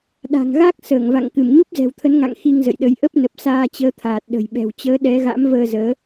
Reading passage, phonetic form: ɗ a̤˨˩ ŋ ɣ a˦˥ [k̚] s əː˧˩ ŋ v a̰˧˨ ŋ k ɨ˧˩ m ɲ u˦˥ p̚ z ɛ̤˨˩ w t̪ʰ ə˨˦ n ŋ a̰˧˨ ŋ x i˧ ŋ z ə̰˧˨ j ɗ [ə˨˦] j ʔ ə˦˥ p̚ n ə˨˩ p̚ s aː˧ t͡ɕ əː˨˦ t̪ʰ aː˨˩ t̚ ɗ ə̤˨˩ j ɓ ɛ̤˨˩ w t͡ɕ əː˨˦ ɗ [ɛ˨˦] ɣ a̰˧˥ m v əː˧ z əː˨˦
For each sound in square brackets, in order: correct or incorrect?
correct, correct, correct

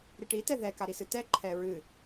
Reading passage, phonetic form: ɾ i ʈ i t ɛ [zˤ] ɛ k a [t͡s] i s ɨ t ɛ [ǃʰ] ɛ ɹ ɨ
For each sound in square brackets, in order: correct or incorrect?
incorrect: ð, incorrect: ɾ, correct

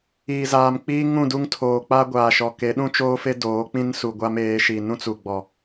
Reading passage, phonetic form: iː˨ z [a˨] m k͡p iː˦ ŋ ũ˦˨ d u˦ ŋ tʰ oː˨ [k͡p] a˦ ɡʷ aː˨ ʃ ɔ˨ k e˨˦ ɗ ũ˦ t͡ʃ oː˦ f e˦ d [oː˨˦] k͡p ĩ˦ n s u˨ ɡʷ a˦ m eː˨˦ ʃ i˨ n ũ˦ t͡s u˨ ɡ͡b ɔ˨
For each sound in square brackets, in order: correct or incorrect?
incorrect: aː˨, correct, correct

